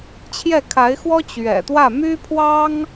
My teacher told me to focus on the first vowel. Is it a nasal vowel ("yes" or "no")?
no